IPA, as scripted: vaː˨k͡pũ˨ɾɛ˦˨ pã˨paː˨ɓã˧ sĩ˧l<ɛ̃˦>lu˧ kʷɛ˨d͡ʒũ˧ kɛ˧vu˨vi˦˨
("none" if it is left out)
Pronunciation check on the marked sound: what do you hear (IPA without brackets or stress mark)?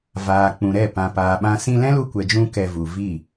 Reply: ɛ̃˦